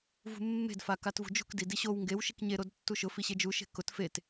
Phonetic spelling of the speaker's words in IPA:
v ṳ mː e̤ d f a k a t v ṳ d͡ʒ ṳ k d i d i ɕ o w ŋ ɡ e w ʃ i k ɲ e ɾ o d tː u ʃ ʊ f i ɕ e d͡ʒ u ʃ e̤ k ʊ t f e t

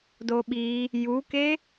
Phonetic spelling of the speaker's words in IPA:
d o ɓ i | j u k e

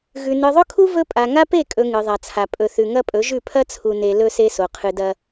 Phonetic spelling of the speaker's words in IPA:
ɣ ʉ˨ n ɨ˨ ðˤ ɵ˦ kʰ u˦ v ɵ˦ pʼ a˨ ŋ a˦ p e˦˨ kʼ ɵ˨ ŋ ɨ˨ ðˤ a˨ t͡sʰ a˨ pʼ ɵ˨ θ ʉ˨ ŋ ɐ˦ pʼ ɵ˨˦ ʒ ʉ˦˨ pʰ ɐ˦ t͡sʰ u˨ n e˨ l ɵ˦ s e˦ s o˨ qʰ ɨ˨ d ɐ˦

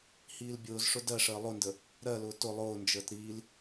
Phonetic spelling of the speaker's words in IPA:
h iː l bʲ ʊː z ʂ ʊ d ɜ ʂ əː lˠ ʊ n d ə | ɾ ɜ l ʊː t ʊ lˠ ʊː n d͡ʒ əː t ɾ iː l

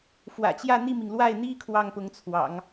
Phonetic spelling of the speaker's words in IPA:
f w ä̰˨˩ t͡ɕ j ä˥˧ n̪ i˥˩ m i˩ ŋ l w a˥˩ ɪ̯ n̪ i˥ kʰ w ɑ˥˩ ŋ p ʊ˧˥ ŋ t͡sʰ w ɑ̰˨˩˦ ŋ

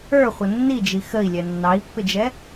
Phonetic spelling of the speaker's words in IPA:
ə˞ χʷ ə nː i d͡ʒ i x ə i̯ lʲ ɛ nː ɑ i̯ pː ɪ d͡ʒ ɛ

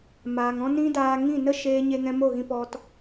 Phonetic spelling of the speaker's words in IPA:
m aː˨ ŋ ɔ̃˦ n ĩ˦ d aː˧ ŋ ĩ˦˨ n ə˦ ʃ eː˦ ɲ e˦ ŋ ɛ̃˦ m o˦˨ ɣ ĩ˧ p ɔ˧ t

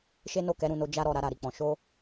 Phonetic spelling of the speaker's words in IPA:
ʃ e˦ n o˦˨ k ɛ˨˦ ɾ ũ˦˨ n o˧ d͡ʒ a˦ ɾ ɔ˦˨ ɾ a˧ ɾ a˨ ɾ i˨ k͡p ɔ̃˨ ʃ o˧

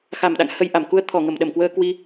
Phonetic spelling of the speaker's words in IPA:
x a˧˩ m ɗ a̰˧˨ ŋ h ə˧ j ʔ a˧˩ m k u˧ ə̯ t̪ʰ ɔ˧˩ ŋ ə˧˩ m ɗ ə˧˩ m k w əː˧ k w i˧

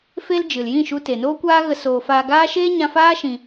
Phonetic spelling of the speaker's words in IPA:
f e˦ l d͡ʒ ɨ˨ l j ĩ˦˨ ʃ u˧ t e˨ n oː˦ kʷ aː˦ ɣ ə˧ s oː˨ f aː˧ ɡ aː˦ ʃ eː˦ ɲ ã˧ f aː˦ ʃ ĩ˧

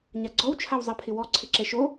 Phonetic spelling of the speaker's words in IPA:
ɲ a ɡ͡ǀ ɔ w t͡ʃʰ a w zˤ ɛ pʰ ɪ w ɔ ǀʰ ɪ ǁ ɛ ʃ o

